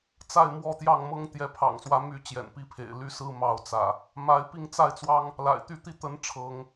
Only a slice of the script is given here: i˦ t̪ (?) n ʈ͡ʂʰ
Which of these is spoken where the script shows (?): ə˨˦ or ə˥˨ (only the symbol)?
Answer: ə˨˦